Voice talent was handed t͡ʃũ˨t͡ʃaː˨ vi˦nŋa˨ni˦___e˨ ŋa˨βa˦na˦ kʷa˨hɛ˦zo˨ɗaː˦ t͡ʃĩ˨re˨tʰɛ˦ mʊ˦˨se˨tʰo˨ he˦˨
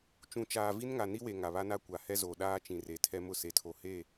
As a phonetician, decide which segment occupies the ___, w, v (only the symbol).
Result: w